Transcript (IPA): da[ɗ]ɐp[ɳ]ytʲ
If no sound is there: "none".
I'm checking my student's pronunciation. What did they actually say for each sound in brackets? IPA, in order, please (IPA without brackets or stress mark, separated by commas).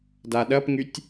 ɗ, ŋ